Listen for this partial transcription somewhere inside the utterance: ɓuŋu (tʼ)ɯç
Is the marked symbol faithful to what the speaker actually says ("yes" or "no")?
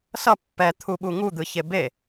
no